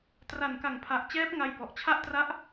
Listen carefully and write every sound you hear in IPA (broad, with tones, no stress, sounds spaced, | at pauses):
t r a˨˩ n k a˨˩ ŋ pʰ a˨˩ ʔ t͡ɕ ɛː˦˥ p̚ ŋ a˧ j b ɔ˨˩ ʔ t͡ɕʰ a˥˩ ʔ t r a˦˥ ʔ